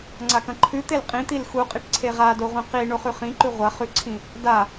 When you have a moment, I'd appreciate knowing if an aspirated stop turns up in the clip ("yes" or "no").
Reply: yes